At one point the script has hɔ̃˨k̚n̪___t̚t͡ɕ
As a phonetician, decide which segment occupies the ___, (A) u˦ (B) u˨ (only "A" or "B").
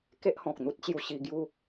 A